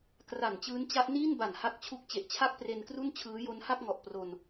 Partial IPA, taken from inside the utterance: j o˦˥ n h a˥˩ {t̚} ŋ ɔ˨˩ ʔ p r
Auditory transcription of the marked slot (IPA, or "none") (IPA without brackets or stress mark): k̚